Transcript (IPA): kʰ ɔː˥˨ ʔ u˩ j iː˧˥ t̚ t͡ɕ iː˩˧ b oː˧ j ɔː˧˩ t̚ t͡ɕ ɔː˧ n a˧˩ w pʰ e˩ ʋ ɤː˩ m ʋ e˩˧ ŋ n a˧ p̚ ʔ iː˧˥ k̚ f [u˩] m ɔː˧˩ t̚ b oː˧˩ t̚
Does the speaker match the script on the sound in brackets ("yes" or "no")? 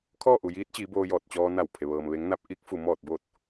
yes